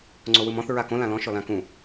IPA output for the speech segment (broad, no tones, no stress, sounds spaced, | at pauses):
ŋ͡ǀ o w ɯ m ɔ̃ θ ɹ a k õ l ã l ɔ̃ ʃ ɔ l ã k ũ